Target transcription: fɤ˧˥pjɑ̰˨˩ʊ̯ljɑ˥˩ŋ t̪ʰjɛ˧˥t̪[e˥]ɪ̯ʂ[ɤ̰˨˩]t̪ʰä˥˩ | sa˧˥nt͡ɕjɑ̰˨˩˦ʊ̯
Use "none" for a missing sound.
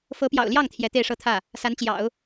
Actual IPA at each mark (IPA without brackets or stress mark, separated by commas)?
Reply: e˥˧, ɤ˥˧